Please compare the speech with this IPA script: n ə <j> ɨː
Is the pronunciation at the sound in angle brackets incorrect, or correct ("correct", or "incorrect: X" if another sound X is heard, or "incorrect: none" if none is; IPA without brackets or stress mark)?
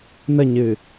incorrect: ɲ